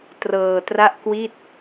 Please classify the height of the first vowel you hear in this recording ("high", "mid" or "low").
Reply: mid